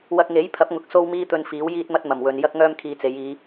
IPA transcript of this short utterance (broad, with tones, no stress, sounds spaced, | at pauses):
w ɐ˧ k̚ ŋ e˨˥ j pʰ ɐ˨˥ p̚ ŋ ʊ˨ k̚ s o˥ w m iː˥ t̪ ɵ˧ n f iː˨˥ w j iː˥ t̚ m ɐ˥ t̚ m ɐ˨˩ m w ɵ˨ n j ɐ˥ k̚ ŋ œː˥ m kʰ iː˧ t͡s e˨˧ j iː˨˧